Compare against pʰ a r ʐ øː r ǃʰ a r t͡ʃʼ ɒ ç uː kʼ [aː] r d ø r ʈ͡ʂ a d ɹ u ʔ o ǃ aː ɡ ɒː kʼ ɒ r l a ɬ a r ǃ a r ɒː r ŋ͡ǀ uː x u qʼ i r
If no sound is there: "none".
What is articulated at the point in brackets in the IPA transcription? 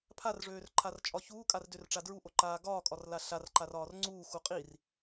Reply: a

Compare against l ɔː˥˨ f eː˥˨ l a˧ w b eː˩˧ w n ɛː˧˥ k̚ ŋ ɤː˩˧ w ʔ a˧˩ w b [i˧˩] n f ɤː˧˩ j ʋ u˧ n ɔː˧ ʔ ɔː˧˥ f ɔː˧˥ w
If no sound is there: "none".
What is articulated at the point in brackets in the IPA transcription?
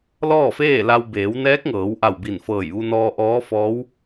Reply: i˧˩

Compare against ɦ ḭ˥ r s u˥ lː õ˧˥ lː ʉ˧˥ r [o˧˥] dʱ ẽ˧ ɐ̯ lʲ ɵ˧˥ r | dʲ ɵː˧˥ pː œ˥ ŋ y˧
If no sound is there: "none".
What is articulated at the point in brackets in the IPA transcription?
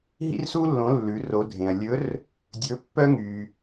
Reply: o˧˥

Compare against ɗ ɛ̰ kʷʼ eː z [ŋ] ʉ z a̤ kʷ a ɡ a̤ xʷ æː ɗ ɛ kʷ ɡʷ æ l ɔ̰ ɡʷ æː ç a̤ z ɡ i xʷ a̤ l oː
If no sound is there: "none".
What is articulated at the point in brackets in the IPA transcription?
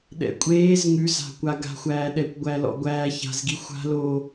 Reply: ŋ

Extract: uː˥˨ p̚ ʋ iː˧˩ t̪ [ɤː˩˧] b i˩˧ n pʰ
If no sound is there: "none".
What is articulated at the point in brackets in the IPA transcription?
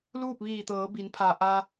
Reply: ɤː˩˧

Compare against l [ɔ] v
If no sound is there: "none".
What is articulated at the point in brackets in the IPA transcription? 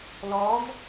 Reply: ɔ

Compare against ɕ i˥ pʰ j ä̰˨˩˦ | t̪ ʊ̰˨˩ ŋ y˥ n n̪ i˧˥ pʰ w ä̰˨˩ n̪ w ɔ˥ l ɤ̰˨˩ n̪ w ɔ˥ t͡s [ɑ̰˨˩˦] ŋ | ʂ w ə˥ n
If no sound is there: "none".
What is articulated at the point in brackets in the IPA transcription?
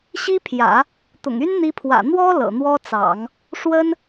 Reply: ɑ̰˨˩˦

